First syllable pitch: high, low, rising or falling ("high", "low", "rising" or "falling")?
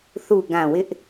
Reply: low